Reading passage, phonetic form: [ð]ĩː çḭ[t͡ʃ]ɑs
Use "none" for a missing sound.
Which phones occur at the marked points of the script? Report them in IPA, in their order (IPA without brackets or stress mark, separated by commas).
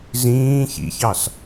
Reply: z, ç